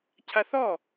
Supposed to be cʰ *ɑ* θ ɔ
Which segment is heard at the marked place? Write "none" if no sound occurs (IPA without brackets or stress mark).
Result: a